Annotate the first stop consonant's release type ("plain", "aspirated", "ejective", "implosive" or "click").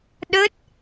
implosive